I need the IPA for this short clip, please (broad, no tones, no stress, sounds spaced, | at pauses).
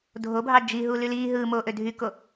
dʱ o bʱ ɑ d͡ʒ i ɦ u l y l iː ɦ ɯː m oː ʔ ø dʱ y k o